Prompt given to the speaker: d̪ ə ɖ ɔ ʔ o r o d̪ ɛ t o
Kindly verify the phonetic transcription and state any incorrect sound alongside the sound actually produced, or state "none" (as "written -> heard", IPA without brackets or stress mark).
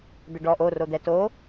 none